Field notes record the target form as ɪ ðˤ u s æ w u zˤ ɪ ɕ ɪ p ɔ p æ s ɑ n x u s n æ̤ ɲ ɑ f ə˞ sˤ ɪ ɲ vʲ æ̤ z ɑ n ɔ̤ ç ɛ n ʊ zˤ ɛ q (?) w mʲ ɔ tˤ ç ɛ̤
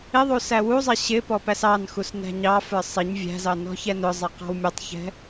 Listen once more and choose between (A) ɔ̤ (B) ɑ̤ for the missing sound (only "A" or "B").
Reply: B